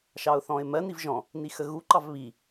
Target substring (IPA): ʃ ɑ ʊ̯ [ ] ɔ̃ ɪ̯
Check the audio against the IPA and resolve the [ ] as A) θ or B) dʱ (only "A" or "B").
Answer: A